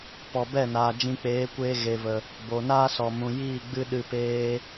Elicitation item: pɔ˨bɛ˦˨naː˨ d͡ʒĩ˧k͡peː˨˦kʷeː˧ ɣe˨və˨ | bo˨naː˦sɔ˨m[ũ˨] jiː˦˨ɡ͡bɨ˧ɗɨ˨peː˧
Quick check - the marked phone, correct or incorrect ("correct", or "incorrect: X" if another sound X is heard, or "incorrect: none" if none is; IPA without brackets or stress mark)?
correct